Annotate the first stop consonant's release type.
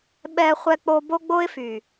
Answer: implosive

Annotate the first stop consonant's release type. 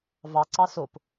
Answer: click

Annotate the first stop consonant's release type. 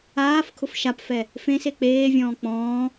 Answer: aspirated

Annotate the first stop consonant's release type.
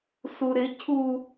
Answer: aspirated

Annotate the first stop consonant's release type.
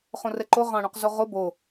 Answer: click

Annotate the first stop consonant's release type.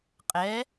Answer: ejective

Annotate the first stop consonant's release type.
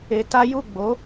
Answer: plain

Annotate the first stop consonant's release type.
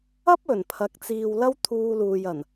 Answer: plain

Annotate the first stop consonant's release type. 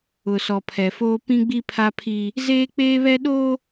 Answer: aspirated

